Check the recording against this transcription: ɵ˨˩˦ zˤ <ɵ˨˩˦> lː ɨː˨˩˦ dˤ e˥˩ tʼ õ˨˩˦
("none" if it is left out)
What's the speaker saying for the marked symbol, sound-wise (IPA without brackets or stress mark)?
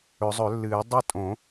ɵ˨˩˦